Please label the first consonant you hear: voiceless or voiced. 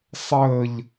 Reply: voiceless